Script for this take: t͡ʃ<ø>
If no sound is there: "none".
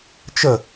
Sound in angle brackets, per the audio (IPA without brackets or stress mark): ə